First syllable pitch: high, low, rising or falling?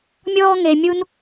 high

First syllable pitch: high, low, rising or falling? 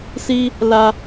high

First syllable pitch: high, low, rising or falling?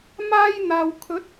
high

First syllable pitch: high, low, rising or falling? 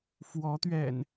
rising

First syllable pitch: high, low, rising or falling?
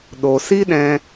low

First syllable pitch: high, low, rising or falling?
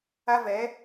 high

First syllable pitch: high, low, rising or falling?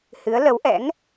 rising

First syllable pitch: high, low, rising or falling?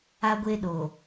high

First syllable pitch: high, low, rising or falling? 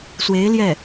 rising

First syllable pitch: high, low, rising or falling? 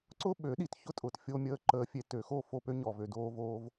high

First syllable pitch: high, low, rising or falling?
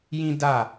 high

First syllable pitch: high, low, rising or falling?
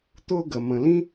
high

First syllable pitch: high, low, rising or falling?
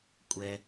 high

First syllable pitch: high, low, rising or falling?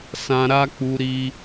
high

